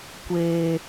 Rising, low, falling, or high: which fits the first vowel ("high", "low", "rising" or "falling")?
low